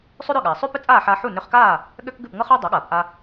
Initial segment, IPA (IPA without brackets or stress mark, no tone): sˤ